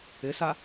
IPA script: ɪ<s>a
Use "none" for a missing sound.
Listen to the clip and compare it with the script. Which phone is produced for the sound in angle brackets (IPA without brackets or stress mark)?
s